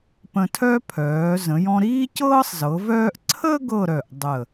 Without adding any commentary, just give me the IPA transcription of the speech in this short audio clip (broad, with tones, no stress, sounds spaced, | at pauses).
p ə̃˧ tʰ œ˥ pʰ œː˩˧ z ə̃˩˧ j ɔ̃˧ ɾ iː˥ c ɤː˥ sˤ z ɤ˩˧ v œː˥ ʔ ǀʰ ə˥ ɡ ɤ˥˧ ɾ œ˧˩ ʔ dˤ ə˧˩